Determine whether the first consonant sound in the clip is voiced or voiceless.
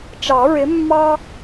voiceless